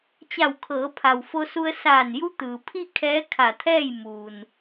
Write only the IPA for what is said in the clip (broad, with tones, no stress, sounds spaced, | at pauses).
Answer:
t͡ɕ a˧˩ w kʰ ɤː˩˧ pʰ a˩ w f o˧ s u˧ ə̯ s aː˧˩ n j u˧˥ t̪ ɯː˩ pʰ i˥˨ kʰ ɛː˧˥ kʰ a˧˩ t̪ʰ ɛː˥˨ j m uː˩ n